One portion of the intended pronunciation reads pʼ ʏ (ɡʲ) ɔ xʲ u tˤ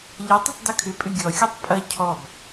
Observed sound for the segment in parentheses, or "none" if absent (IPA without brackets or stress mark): ɡʲ